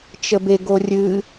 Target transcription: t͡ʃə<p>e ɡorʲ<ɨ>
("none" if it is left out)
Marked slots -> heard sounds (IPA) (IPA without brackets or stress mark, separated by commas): b, ɨ